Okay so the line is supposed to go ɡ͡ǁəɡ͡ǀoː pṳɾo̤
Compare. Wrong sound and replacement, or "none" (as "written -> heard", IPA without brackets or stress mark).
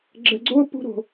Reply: none